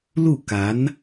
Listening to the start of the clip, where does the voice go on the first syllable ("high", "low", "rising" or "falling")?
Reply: falling